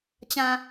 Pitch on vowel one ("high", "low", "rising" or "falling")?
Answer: low